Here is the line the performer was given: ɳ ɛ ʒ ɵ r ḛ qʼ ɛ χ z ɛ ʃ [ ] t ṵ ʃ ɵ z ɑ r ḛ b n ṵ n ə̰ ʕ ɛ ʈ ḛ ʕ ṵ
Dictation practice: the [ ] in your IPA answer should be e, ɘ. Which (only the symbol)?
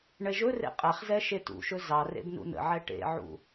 e